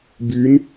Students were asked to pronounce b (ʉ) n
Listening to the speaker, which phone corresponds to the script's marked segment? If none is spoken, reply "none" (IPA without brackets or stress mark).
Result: ʉ